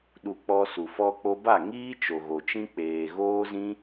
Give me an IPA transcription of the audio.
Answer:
ɗ u˧ k͡p ɔ˧ s u˨ f ɔ˧ k͡p o˧ b a˦˨ ŋ iː˦ t͡ʃ o˨ ɣ o˨ t͡ʃ ĩ˦ k͡p eː˨ ɣ oː˦ z ĩ˦

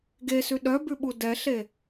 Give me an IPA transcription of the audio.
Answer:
ɡ e s ʉ ɗ œ b ʉ ɓ u d ɛ ɬ e

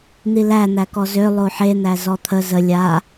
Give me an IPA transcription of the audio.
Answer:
n̪ i l æ n̪ æ k ɔ z ø lˠ o ħ e n̪ æ z ɔ t̪ʰ ə z ə lʲ a

